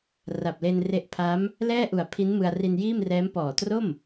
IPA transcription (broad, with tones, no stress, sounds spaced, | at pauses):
r a˨˩ p̚ l e˧ n r e˦˥ ʔ pʰ a˦˥ m | l ɛː˥˩ ʔ u˨˩ a̯ pʰ i˦˥ n m ɯ˧ a̯ r i˧ n j iː˥˩ m r ɛː˦˥ m p ɔː˨˩ t r o˥˩ m